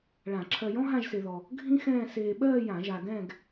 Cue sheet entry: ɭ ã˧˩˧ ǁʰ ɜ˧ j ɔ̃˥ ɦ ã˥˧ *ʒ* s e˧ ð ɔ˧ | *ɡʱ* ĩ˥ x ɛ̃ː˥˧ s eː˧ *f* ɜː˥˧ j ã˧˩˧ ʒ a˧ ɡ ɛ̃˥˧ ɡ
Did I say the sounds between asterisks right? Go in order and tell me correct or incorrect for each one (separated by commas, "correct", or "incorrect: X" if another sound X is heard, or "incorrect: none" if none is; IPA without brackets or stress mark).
correct, correct, incorrect: ɓ